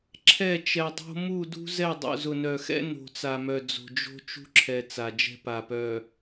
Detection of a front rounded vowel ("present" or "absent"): present